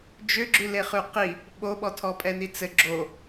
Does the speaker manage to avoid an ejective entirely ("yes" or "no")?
no